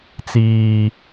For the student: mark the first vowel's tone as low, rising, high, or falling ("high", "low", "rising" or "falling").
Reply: high